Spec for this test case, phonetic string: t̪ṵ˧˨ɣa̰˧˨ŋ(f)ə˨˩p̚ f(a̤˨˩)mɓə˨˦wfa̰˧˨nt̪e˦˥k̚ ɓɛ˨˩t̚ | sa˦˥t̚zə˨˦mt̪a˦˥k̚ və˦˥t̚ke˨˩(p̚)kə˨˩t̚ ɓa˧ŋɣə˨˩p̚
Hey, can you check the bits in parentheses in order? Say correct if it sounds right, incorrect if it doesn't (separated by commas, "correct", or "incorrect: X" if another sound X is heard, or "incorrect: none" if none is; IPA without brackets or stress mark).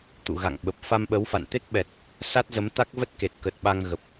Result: incorrect: ɓ, incorrect: a˧, incorrect: t̚